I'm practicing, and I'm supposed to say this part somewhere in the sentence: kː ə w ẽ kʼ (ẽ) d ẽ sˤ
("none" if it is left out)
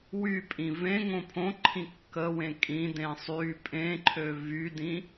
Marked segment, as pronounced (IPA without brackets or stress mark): ĩ